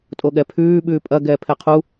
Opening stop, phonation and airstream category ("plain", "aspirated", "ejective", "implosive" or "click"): ejective